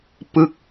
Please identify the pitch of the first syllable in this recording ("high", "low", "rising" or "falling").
falling